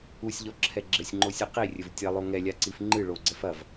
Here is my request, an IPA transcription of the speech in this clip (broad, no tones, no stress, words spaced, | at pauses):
usʲʎɔǁʰɛ ɡ͡ǁɘsʲŋ͡ǃosʲɨ qirʲɘv tʲɐlˠo ŋɛlʲaǀif ŋ͡ǃɨ ɭoɡ͡ǀɛf ɐv